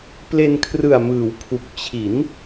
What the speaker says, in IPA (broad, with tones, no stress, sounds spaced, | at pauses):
p l e˧ n kʰ r ɯ˨˩ a̯ m ɯː˩˦ w pʰ u˨˩ k̚ t͡ɕʰ i˩˦ n